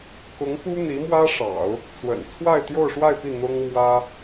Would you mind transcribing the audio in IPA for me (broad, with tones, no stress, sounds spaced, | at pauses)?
k ʊ˧˥ ŋ p u˥ n̪ i˧˥ m w ä˥ ʂ ɑ̰˨˩˦ ʊ̯ | t͡s w ə̰˨˩ n t͡sʰ w a˥˧ ɪ̯ t̪ j o˥˧ ʊ̯ ʂ w a˥˧ ɪ̯ p i˥˩ n̪ ʊ˥ ŋ m w ä˥